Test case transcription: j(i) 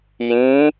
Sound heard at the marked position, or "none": ĩ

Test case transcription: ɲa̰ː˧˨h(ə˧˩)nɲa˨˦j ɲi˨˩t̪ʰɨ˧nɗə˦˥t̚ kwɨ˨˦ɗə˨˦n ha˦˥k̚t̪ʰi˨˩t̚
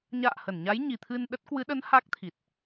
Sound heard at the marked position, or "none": ə˧˩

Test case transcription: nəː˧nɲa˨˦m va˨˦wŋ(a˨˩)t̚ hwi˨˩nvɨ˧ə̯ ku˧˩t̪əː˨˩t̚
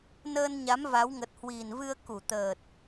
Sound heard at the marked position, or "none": ə˨˩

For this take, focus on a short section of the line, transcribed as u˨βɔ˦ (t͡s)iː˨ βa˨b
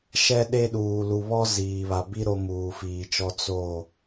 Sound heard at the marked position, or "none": z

